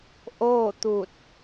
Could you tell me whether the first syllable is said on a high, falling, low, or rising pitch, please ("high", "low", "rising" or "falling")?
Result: falling